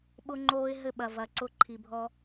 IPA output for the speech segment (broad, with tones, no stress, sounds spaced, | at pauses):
ɓ ʊ˦ ŋ͡ǃ oː˧ ɪ̯ ɦ ɘ˧ ɓ ɐ˨ v ɐ˨ ǀ ʊ˧ ǃʰ i˨ bʱ ɔ˧